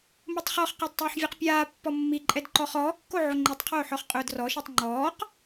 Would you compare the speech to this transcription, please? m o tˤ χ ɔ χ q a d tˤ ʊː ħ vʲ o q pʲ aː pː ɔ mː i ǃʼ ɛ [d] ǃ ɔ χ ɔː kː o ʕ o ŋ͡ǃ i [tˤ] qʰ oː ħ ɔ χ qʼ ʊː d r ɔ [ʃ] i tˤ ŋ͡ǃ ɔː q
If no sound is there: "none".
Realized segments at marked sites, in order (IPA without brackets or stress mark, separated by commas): d, tˤ, ʃ